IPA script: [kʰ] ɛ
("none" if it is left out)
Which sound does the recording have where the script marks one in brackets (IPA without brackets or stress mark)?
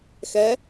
x